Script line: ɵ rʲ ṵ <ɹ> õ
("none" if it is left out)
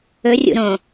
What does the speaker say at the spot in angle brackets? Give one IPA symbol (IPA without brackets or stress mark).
ɾ